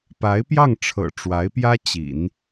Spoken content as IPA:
p a˧˥ ɪ̯ p j ɑ˥˩ ŋ ʈ͡ʂʰ ɤ̰˨˩ ʈ͡ʂ w a˧˥ ɪ̯ p j ä˥ t͡ɕ ḭ˨˩˦ n

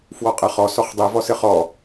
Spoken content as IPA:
f w ɔ qʼ ɐ χ ɔ s ɔ χ dˤ i v ɔ s ɘ χ ɔ

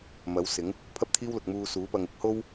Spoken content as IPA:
m ɐ˨˥ w s ɪ˨˥ ŋ | pʰ ɐ˥ p̚ t̪ʰ iː˥ w l ʊ˨ k̚ m uː˧ s uː˨˥ p ɐ˨ ŋ ɪ˥ k̚ h o˥ w

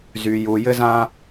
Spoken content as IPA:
z y˩ j u˩ j ɘ˥ z ãː˥

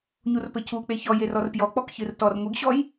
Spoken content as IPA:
ɲ u r p ɘ cʰ u k͡p e ç ɔ j e r ɔ r p j ɔ k͡p ɔ k ç ɨ r t ɔ r ŋʷ ɨ ɡ ɕ ɔ j

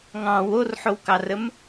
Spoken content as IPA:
ŋ ɑ̃ w o r ħ o w k ɑ r ə m

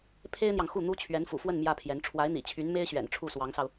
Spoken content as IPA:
pʰ e˥ ɪ̯ n̪ j ɑ˨ ŋ x u˥˩ n̪ u˥ t͡ɕʰ ɥ ɛ˧˥ n f ṵ˨˩ f w ə˥˩ n m j ä˥ pʰ j ɛ˧˥ n ʈ͡ʂʰ w a˧˥ ɪ̯ n̪ ḭ˨˩ t͡ɕʰ y˧˥ n m e˥ ɪ̯ ɕ ɥ ɛ̰˨˩ n ʈ͡ʂʰ u˥˩ s w ɑ˧˥ ŋ s ɑ˧ ʊ̯

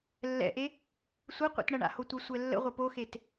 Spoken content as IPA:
lː ɛ̰ ʔ e | sʷ ɘ qʷ ḛ t ɳ ɐ ɳ a̰ h o tʷ ɘ sʷ ɛ lː ə̰ ʁʷ ə p o x e t

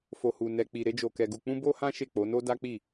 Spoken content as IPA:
f o˧ h u˧ n ɛ˧ k͡p i˧ ɾ e˦ d͡ʒ o˧ k ɛ˧ ɡ u˧ k͡p ũ˦ b o˦ h ã˦ ʃ e˦˨ k͡p o˨˦ n o˦ d a˦ k͡p i˦˨

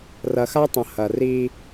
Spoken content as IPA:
r ɐ˨ x a˦ tˤ ə̃˨ h ɐ˨ r i˦

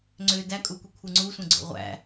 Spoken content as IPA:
ŋ͡ǀ ø d æ kʼ u kʷ i kʷʰ ɯ ŋ͡ǀ u sʷ ẽ ɡ͡ǀ o̰ ʁʷ æ̰

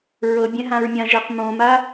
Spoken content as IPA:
ɹ ɤ bʲ ɛ̃ ɦ ã ɹ mʲ ã ʒ ɛ q m õ m a

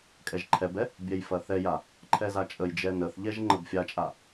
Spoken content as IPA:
kʼ ɛ ʒ ǃʰ ɛ b ɛ | bʲ ɛ j f ɐ θ ɛ j a | ǃʰ ɛ z a t͡ʃʼ ə j d͡ʒ ɛ n ə θ ʎ ɛ ʒ ŋ͡ǃ ə b fʲ a t͡ʃʼ a

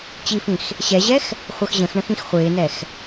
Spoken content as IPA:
t͡ɕ i f ĩ x | ɕ ɛ ʑ ɛ x | χʷ ɜ x ʑ ə̃ x ɳ ə̃ x ĩ x χʷ ɪː n ɛ x

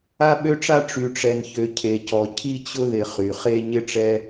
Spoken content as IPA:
a˧ ɓ ø˧ ʈ͡ʂ a˧ ʈ͡ʂ y˩ ʈ͡ʂ ɛ˩ n ç ø˩ cʰ e˩ c ɔ˩ cʰ i˧ t͡ɕ ʊ˧ ð ɪ˩ χ y˩ χ e˧ ɲ ɪ˧ ʈ͡ʂ ɛ˧

